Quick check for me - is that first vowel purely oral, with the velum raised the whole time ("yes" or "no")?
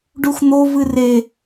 yes